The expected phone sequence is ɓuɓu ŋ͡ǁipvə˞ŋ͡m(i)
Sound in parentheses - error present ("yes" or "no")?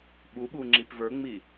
no